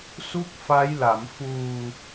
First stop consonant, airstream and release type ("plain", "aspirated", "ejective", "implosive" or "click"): plain